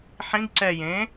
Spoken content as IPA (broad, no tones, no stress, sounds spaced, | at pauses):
ħ ĩ ɡ ǀ ɛ j ẽ